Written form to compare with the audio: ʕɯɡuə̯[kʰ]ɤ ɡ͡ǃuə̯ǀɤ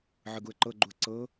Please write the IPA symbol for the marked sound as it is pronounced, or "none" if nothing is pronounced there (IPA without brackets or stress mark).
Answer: ǃ